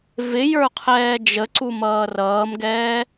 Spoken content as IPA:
v ɪ j ə˞ qʰ ɛː d͡ʒ ə ǀ u m ʌː r ʌː m ɡ ɛː

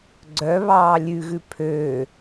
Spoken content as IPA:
ɡ͡ǀ œ β ɑː lʲ ʉ ɣ ʉ pʰ ø

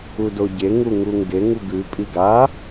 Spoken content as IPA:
u d o ɟ e ŋ u ŋ u ŋ ɡ e ŋ u ɡ ʉ pʼ i ɡ a

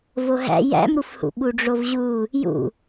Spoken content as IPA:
v o ɦ æ̰ j æ̰ m ɾ u f h ṵ ɓ u ɖ͡ʐ o v ʑ u | j ṵ

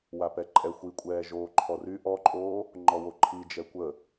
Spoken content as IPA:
w a p ɛ ǃʼ ɛ xʷ i kʷʼ ɛː ʒ oː ǃʰ ɔ r y ʔ ɔ ǃʼ oː | ŋ͡ǃ ɔ w o ǃʰ i d͡ʒ ɛ kʷ ə

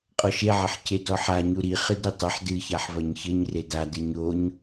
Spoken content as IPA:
qʼ ɔ ʃ e ʕ ɐ ħ c e d ɔ ħ a ɲ u ɾ i χ ɨ d ɾ i tˤ ɐ ħ d ɨ ç a ħ v ɐ ɲ ç ɘ ɲ r e d a d ɨ ɲ o ɲ

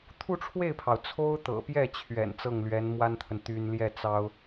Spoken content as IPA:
t̪ʰ u˥˧ ʈ͡ʂʰ w e˥˩ ɪ̯ pʰ ɑ˩ ʊ̯ t͡sʰ o˥ ʊ̯ t̪ ɤ̰˨˩ p j ɛ˥˩ t͡ɕʰ ɥ ɛ̰˨˩ n t͡s ɤ˥˩ ŋ l ɥ ɛ˧˥ n m w a˥ n t̪ʰ ə˨ n t̪ y˥ n l j ɛ˥˩ t͡s ɑ˥ ʊ̯

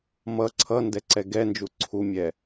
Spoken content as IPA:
m ʌ ǀʰ ʌ n d ɛ ǀ ɛ ɡ ɛ n d͡ʒ u ǀʰ u mʲ ɛ

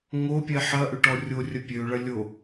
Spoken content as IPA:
ŋ o pʲ ɛ ħ ɐ ʔ ʏ ʈ ɔ rʲ o rʲ ɐ pʲ ø ɭ ɐ lʲ o

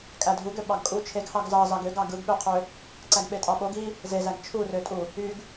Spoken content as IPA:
kʼ æ dʱ u ɡ ø ɓ ɑ ɡ kʼ u t͡ʃʰ e ɡ h ɑ ɡ z ɑ z ɑ ɡ ø ɡ ɑ ɡ ɯ ɡ ɓ ø qʰ ø | ǀ æ ɡ ɓ e tʼ ɑ ɓ o ɡ i | z e z æ ɡ t͡ʃʰ u r ø tʼ u | y ɡ

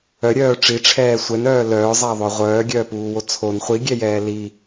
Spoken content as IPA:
œ ɾʲ œː ʈ͡ʂ i ʈ͡ʂʰ ɛː sʷ ɛ n œː l œː zˤ a ðˤ œ ʁʷ œː ɡʲ œː p uː w o t͡sʰ o n χʷ i ɡʲ ɛ j ɛː l i

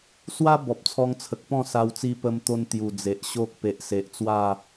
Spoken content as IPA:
s w a˦ b ɔ˨ p̚ t͡sʰ ɔ˧ ŋ t͡sʰ ə˨ k̚ p ɔ̃˥˧ s a˧ w t͡s i˧ p ə˧ m t̪ o˧ n t̪ j u˨˩ d͡z e˨ ʔ ɕ o˦ k̚ p e˨ ʔ s e˨ ʔ t͡s w a˥˧

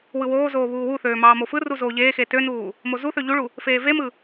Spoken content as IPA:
w ɯ w oː z oː β uː w u θ øː m ɑː m o f ɯ r u z oː ʎ eː x e t ø n uː | m o z u θ ø ʎ u ɭ u | f eː v e m ɯ

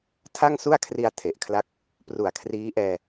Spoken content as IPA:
tʰ a˥˩ ŋ s u˥˩ a̯ kʰ r i˧ a̯ tʰ e˨˩ ʔ kʰ l a˦˥ k̚ | p r u˨˩ a̯ kʰ r iː˦˥ ʔ ɛː˧

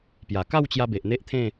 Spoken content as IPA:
p j a˨˩ k a˥˧ w t͡ɕ j a˧ b e˨ ʔ n̪ e˦ ʔ t̪ʰ ẽ˥˧

